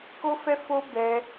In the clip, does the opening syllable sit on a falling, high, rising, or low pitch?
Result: high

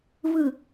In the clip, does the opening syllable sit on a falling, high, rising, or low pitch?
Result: falling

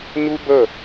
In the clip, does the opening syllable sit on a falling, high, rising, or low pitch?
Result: high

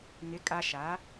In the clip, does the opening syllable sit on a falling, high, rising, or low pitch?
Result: rising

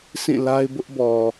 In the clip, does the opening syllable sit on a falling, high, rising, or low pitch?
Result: falling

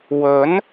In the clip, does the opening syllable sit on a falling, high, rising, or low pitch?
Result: rising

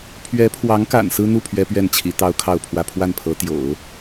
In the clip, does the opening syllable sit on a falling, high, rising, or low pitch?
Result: rising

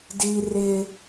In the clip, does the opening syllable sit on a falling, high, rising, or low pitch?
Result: high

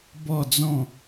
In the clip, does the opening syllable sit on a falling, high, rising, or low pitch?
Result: falling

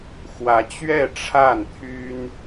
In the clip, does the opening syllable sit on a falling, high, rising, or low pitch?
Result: rising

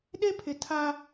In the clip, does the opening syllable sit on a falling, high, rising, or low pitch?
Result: high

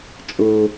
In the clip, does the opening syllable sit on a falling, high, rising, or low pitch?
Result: low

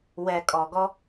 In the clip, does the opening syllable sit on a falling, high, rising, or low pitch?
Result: low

